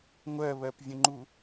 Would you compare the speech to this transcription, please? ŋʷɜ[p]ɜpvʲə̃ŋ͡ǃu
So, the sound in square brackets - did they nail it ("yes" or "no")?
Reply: no